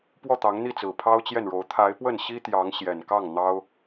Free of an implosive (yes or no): yes